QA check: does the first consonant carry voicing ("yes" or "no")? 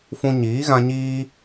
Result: no